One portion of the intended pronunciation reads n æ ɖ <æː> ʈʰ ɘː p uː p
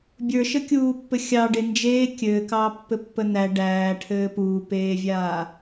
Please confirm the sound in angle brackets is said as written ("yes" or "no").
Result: yes